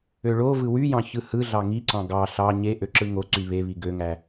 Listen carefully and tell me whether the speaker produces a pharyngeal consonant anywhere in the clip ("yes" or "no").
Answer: no